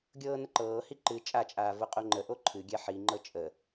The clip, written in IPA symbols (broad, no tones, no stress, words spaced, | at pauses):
ɡʲɤːnəǃɤːhi ǃɨ t͡ʃʼat͡ʃʼaː voqʼoŋ͡ǃəʔo ǃʰɨɡʲɛ ħiŋ͡ǃɤ t͡ʃʼə